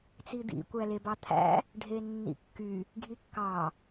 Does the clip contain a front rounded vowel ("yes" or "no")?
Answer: yes